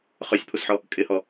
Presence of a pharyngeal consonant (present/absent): present